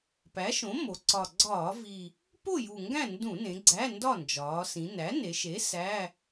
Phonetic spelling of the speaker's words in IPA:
p æ˩˥ ʃ õ˩˥ m o˩˧ ǀ ɒ˨˩ ɡ͡ǀ ɒː˧˩˧ v i˨˩ | p o˥˨ j u˨˩ ŋ ɡ æ̃˥˨ n d ũ˧˩˧ n ẽ˩˧ ɡ͡ǀ æ˧˥˧ n d ɒ˥˨ n d͡ʒ ɒː˩˧ s ĩ˩˧ n æ˩˥ n e˩˧ ʃ e˩˥ s æ˧˥˧

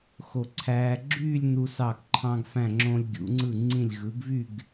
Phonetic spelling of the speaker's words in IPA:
x o˧˩ ǀʰ æː˧ ɡ͡ǁ yː˥˧ lʲ n u˧ s ɑ˧˩ ɡ ǃʰ ɑ̃˧ ɡ f æ̃˧˩ ŋ͡ǁ õ˧ lʲ ɡʲ ṵ˩˧ ŋ͡ǀ ɯ˧˩ ŋ͡ǀ ĩ˧˩ lʲ ɣ ɯ˩˧ ɡ v y˥˧ ɡ

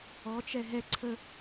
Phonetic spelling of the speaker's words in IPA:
ɔ t͡ʃ ɛ ɦ ɛ ǀʰ ə

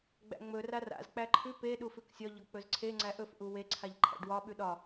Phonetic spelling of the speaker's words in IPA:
ɡ͡b æ̰ ŋ͡m ɵ r a r a̰ z k͡p æ ǃʰ ʉ p e ɗ u f ʉ k sʲ ɒ ʎ ɒ k͡p ɵ z ǀʰ e ŋ͡ǀ æ ʔ ɵ f ʔ u w e ǀʰ a ʎ ǃʰ æ̰ ɖ w ɒ ɓ ʉ ɗ ɒ

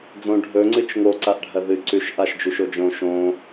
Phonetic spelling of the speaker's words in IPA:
d͡z õ ɖʱ ɵ ŋ͡ǀ ɨ t͡ʃ ŋ o ǀ a ʔ ɖʱ ɐ ð ɨ ǀ ʉ ʃ ʔ a ʃ d͡ʒ ʉ ʃ o d͡ʒ õ ʃ õ

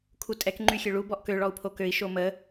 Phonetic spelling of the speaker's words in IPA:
kʰ u tʼ ɛ k ŋ͡ǃ y xʲ ø ɭ u b ɔ ʔ k ø ɭ ɔ u̯ pʰ o k ø i̯ ʃ o m ə

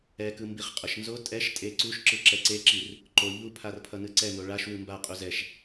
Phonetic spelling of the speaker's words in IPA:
ɛ k ɯ m b i χ qʼ ʌ ʃ n z o tʼ ɛ ʃ tʼ e ǀ u ʃ ǁ ɯ ǁ ɛ ǀ e ǁ i r | ǃ o ʎ u pʰ a r pʰ ʌ n ɯ ǀ ɛ n o ɭ a ʃ w ɯ m b a qʼ u z ɛ ʃ

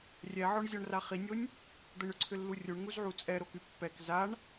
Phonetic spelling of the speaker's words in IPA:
rʲ ɛ ʕ ɔ ɳ zʲ ɔ ɳ r a χ i nʲ o nʲ | d̪ ə ɳ ʏ ǀʰ ʏ lː u rʲ u ɳ ŋ u z ʕ u t͡sʼ ɛ ɾ o k y pː ɛ k z a ɳ

